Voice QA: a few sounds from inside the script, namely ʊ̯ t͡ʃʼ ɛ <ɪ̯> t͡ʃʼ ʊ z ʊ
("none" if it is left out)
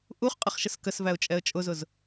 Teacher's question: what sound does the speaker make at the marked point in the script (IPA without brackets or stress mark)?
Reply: ə̯